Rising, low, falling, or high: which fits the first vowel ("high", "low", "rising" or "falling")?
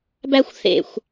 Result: high